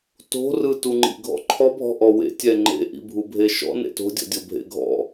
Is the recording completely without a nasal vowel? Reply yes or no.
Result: yes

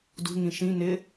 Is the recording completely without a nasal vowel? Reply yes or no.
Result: no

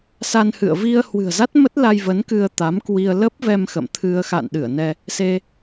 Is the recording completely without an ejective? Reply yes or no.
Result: yes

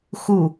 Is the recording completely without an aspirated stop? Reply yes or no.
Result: yes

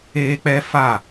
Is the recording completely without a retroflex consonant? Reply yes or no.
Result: yes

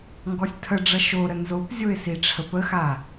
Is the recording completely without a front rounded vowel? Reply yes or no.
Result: yes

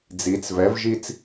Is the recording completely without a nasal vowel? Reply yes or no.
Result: yes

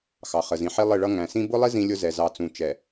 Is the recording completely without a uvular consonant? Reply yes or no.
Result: no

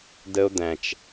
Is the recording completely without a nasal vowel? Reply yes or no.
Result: no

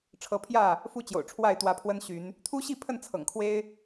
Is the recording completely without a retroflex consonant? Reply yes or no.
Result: no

